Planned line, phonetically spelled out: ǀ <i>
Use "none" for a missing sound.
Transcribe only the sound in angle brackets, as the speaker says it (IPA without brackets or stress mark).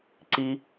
i